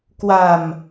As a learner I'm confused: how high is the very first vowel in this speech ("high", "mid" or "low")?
low